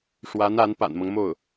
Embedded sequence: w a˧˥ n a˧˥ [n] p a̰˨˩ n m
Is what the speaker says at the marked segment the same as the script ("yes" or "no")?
yes